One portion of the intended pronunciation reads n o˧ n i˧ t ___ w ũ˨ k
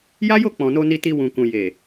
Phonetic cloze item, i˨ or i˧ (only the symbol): i˧